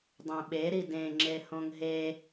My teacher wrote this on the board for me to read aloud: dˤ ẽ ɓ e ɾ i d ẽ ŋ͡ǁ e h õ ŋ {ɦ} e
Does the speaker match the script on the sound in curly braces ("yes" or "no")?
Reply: yes